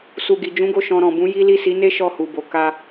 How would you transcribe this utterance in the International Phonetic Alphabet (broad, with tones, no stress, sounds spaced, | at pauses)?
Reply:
s u˨ ɡ i˨ d͡ʒ ũ˨˦ ɡ o˦˨ ʃ ɔ̃˧ ɾ ɔ̃˨ b ũ˨˦ j i˦ l i˦˨ s i˨˦ n e˦ ʃ ɔ˦˨ h u˨ b o˨ k a˧